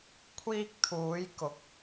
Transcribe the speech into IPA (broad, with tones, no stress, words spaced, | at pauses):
kʷʰiː˧k̚t̪ʰuː˨˧jkʊ˨˥k̚